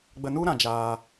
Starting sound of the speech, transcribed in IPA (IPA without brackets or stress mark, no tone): ɡ͡b